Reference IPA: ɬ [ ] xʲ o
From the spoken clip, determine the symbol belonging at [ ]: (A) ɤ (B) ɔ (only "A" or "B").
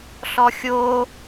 B